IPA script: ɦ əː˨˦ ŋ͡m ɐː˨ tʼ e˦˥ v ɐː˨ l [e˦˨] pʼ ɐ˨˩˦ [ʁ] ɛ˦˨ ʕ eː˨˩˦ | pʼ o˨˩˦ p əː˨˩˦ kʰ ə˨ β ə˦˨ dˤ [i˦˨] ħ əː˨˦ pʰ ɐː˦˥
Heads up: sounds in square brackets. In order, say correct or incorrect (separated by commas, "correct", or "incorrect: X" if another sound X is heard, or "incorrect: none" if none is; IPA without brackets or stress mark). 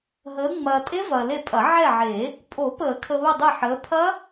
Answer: correct, incorrect: ʕ, incorrect: e˦˨